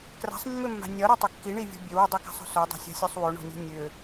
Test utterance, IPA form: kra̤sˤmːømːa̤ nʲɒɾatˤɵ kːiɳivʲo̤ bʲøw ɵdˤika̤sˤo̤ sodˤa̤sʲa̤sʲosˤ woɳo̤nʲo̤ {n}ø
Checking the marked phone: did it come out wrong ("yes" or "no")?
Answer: yes